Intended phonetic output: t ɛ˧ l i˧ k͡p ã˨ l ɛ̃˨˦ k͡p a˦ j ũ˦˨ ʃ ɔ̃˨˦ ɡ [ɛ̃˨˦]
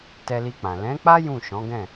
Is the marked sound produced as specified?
no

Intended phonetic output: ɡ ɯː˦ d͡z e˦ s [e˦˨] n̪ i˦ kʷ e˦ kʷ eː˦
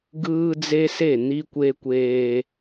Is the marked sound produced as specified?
yes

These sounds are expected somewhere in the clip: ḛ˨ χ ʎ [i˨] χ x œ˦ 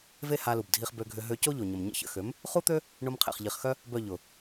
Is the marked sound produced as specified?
yes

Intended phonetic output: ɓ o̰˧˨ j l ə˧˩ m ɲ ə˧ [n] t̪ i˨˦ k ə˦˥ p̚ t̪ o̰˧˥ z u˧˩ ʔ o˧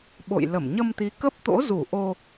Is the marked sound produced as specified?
no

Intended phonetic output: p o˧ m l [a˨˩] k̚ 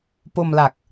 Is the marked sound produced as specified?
yes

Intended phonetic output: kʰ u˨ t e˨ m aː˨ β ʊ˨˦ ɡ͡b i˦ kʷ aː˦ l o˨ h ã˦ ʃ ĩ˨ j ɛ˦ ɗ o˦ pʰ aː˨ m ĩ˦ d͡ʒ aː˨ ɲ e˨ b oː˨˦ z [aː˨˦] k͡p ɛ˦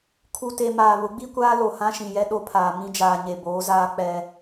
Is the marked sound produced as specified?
no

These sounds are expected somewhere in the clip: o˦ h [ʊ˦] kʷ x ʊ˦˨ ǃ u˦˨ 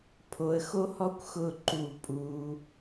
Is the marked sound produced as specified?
no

